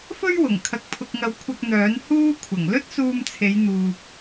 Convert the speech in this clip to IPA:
f ɵ˥ ɥ w ʊ˨˩ ŋ kʰ ɐ˨ k̚ pʰ ʊ˨ k̚ ŋ ɐ˨ w kʷʰ ɐ˧ k̚ n̪ œː˨˥ n h uː˧ kʷʰ ɐ˨˩ ŋ l ɵ˥ t̚ s uː˧ m t͡sʰ e˨˧ j n̪ uː˨ p̚

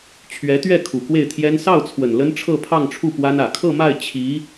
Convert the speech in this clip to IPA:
t͡ɕʰ ɥ ɛ˧˥ t̪ ɥ ɛ˥˩ kʰ u˨˩ k w e˥˩ ɪ̯ t̪ʰ j ɛ˥ n s ɑ˥˩ ʊ̯ t͡sʰ w ə˨˩ n l ə˥ n ʈ͡ʂʰ ɤ˥˧ pʰ ɑ˥˧ ŋ ʈ͡ʂʰ u˥˩ p w a˥ n ä˨˩ kʰ ɤ˥˧ m a˥˩ ɪ̯ t͡ɕʰ i˧˥

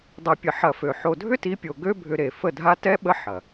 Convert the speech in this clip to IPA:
dˤ ɛ˨ pʲ ə˨ ħ ɐ˨ f ø˨ ħ o˨ dʱ ʏ˦ t i˨˦ pʲ o˨ ɡ ø˦ bʱ ʏ˦ ɾ e˨ f ə˦˨ dʱ a˦ t ɛ˦ ɓ ə˦ ħ ɐ˨

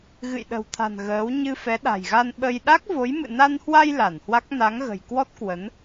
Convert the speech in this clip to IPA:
ɣ ɨ̰˧˨ j ɗ ə̤˨˩ w t̪ʰ a̤˨˩ n ɣ əː˨˦ w ɲ ɨ˧ f ɛ˨˦ ɗ a̤˨˩ j ɣ a˧ n ɓ ə˧ j ɗ a˦˥ k̚ v o˨˦ j m ɨ̰˧˨ n a˧ n h w a˧ j l a˧˩ n h w a˦˥ k̚ n a˨˦ ŋ ɣ ə̤˨˩ j k w ɔ˦˥ t̚ k w ə˨˦ n

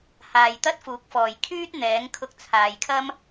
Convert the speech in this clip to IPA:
h aː˨ j t̪ ɐ˥ t̚ f uː˨˥ k̚ f ɔː˨˩ j kʰ yː˥ t̚ n̪ ɛː˨˥ ŋ kʰ ʊ˧ k̚ t͡sʰ aː˨ j kʰ ɐ˥ m

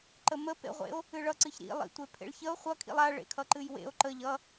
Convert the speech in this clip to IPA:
ǃ ə m ə p ḛ ʁʷ ḛ o̯ | ɨ ɭ ʌ ǀ ɨ ç ɾ ḭ lˠ ḭ tʷ e pʰ ḛ ɭ ç ə o̯ χʷ ʌ kʰ ḭ lˠ a ɭ ḛ kʰ ʌ ǃ ɨ j w ḛ o̯ ǃ ə ʎ ʌ

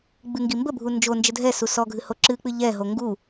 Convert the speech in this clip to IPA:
ɡ͡b ɨ ŋ ɡ i m b ə bʱ u n d͡ʒ o n d͡ʒ ə dʱ ɛ s u s ɔ ɡʱ ɨ h o ǁ ɨ k͡p ɨ ʎ ɛ ɦ o ŋ ɡ u

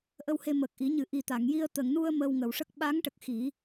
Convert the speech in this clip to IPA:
ʔ ə˧ w h e˧ m ə˨˩ k̚ ʔ i˨˩˦ ɲ ɨ˨˩˦ ʔ i˨˩ t̪ a˨˩˨ ŋ j i˧ ə̯ t̪ ə˨˩˨ ŋ n u˧ ə̯ m əː˧ w ŋ ə˨˩˨ w ʂ ə˦˥ k̚ ɓ a˧˥ ŋ ʈ ə˨˩ k̚ x i˨˩˦

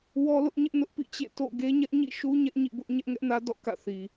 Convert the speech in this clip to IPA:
w ɔ˦ l ʊ˦ ʔ ɲ ɪ˦ ʔ n ʊ˦ ʔ p ḭ˦˨ t͡ɕ ḛ˦˨ t o̰˦˨ ɡ e˦ ɲ ɛ˦ ʔ ɲ ḭ˦˨ ʃ u˦ ɲ ɛ˦ ʔ ɲ ḭ˦˨ b ʊ˦ ʔ ɲ ɛ˦ ʔ ŋ ɛ˦ ʔ n ä˦ d ɔ̰˦˨ k ä̰˦˨ θ i˨

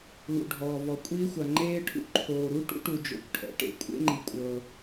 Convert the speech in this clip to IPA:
l ṵ˩ ɖʱ ɔː˩ v ɔ˩ kʷʼ iː˧ xʷ a˩ ŋ͡ǃ eː˧ ʈʰ ṵ˧ ǃʰ oː˩ ɾ u˧ ʈ ṵ˧ ʈ u˩ d͡ʒ o̰˩ kʷ ʈʰ ɛ̰˩ ʈ ḛ˩ kʷʼ ḛ˧ ŋ͡ǃ i˩ kʷʼ ɤ˩

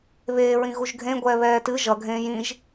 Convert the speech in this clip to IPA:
β eː ɹ ĩ ɣ u ʒ ɡʱ ẽ ɡʷ ɛː β ɛː t ɨ ʒ ʌ ɡʱ ẽː j ĩ ʒ

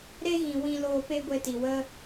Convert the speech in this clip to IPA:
ɾ e˦ ɣ ĩ˨ w ĩ˦ l oː˧ p e˦ ɡʷ e˧ t i˨ w ə˦

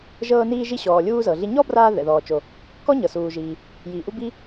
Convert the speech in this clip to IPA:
ʒ ɤː˧ n iː˧ ʒ i˧ ɕ ɔː˩ lʲ uː˧ z ɤ˩ ɮ i˧ ɲ ɔ˥ b r aː˧ ð ɛ̰˩ ð ɔː˩ t͡ʃ o˩ | k ɔ˥ ɲ ɤ˩ s uː˩ ʒ iː˩ | j iː˩ ʔ u˧ b i˧

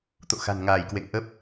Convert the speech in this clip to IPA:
t̪ o̰˧˨ x a̤˨˩ n ŋ aː˧˩ j k w ḛ˧˨ ŋ ʔ ə˦˥ p̚

